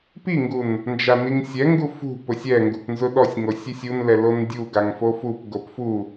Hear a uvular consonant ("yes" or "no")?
no